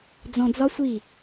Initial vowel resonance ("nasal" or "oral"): nasal